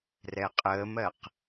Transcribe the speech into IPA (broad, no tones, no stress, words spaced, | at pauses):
rɛqʼəːmɜq